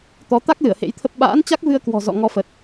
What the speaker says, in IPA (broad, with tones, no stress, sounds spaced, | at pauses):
t̪ ɔ˨˦ t̪ a˦˥ k̚ l ɨ˧˩ ə̯ h ḛ˧˥ j t̪ʰ ə˦˥ p̚ ɓ a̰ː˧˥ n t͡ɕ a˦˥ k̚ v ɨ˧ ə̯ k w ɔ̤˨˩ z ɔ̰˧˨ ŋ ɔ˧ f ə˨˩ t̚